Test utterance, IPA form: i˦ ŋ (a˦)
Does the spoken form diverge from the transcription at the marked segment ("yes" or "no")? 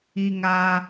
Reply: no